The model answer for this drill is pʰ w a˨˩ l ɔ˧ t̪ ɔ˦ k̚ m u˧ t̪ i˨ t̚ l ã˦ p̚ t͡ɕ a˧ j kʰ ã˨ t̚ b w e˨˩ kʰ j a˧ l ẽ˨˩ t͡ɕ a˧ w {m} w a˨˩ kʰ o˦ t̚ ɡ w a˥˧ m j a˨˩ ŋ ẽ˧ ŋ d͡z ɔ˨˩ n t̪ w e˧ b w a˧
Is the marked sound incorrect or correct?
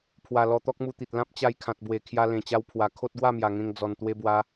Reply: incorrect